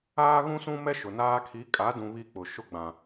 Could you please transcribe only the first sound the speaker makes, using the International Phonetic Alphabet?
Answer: aː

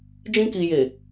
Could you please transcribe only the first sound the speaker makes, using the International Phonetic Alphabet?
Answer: d͡ʒ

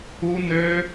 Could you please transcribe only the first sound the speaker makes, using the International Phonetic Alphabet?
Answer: u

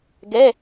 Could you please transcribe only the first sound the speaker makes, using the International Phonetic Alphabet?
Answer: ɡ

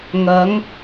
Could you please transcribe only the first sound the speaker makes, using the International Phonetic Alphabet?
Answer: ŋ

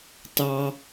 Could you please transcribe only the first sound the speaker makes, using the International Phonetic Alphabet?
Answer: t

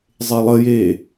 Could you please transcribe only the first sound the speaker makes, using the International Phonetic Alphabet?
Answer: zˤ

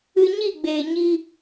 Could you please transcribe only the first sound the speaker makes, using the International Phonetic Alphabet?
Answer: ɨ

